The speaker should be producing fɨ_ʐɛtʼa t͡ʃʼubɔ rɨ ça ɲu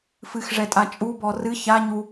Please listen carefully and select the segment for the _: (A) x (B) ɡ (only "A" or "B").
A